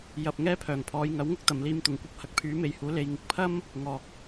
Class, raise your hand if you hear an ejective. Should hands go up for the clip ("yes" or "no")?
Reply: no